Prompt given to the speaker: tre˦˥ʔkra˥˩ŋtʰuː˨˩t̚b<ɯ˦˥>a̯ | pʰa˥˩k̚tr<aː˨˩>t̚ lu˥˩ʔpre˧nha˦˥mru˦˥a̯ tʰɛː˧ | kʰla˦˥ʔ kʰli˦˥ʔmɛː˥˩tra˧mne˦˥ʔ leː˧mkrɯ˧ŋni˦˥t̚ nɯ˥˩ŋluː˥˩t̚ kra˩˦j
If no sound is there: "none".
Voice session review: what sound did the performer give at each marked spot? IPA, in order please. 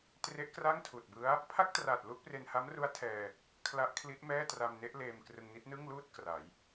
ɯ˦˥, aː˨˩

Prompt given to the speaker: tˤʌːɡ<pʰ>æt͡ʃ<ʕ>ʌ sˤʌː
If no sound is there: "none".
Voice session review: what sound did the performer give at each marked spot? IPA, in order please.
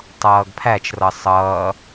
pʰ, r

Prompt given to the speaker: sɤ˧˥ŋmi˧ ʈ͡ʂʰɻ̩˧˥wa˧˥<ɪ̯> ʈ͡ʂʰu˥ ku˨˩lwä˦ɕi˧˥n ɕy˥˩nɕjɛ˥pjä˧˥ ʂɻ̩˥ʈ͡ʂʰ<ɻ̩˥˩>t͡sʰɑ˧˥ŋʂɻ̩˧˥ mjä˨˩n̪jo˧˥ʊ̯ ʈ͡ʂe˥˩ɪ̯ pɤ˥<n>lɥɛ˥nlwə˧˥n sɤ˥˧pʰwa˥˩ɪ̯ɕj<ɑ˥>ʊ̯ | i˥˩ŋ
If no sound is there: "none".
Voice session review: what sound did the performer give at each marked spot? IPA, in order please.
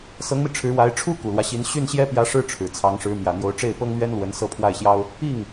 ɪ̯, ɻ̩˨˩, ŋ, ɑ˥

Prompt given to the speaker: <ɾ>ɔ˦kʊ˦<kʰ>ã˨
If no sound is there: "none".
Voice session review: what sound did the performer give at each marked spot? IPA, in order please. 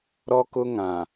ɾ, ŋ

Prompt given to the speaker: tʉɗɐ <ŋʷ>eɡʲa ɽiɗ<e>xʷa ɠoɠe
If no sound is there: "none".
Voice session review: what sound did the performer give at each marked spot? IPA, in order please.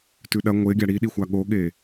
ŋʷ, i

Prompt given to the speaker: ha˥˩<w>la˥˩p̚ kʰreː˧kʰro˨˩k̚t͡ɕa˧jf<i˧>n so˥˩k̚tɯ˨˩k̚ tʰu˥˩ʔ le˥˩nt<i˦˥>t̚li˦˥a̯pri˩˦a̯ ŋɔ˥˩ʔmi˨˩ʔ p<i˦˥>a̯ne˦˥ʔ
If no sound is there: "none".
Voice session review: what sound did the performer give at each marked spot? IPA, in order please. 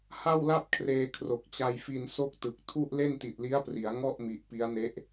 w, i˧, i˨˩, i˦˥

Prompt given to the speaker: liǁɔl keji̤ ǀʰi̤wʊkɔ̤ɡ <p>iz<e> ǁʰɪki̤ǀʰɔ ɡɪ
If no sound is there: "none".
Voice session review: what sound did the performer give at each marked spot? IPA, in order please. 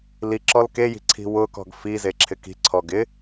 f, e

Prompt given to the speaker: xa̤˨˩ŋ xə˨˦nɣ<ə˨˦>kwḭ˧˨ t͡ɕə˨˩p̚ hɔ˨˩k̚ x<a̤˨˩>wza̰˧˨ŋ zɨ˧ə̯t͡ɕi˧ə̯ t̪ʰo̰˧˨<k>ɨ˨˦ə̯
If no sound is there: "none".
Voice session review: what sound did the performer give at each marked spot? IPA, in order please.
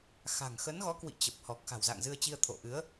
ɔ˨˦, a̤˨˩, ʔ

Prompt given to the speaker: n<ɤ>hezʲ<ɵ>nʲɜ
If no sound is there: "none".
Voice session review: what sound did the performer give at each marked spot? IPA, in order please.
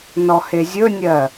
ɔ, ɵ

